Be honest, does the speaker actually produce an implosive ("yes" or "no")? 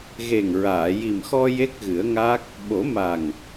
yes